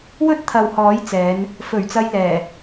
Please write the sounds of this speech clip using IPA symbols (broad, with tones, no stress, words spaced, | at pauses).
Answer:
wɵ˥t̚t̪ʰɐ˨w hɔː˨˥j t͡sɛː˨˧n | fɵ˨˩ɥt͡sɐ˧jlɛː˨˩